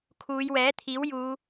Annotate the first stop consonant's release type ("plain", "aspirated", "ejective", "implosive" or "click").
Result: aspirated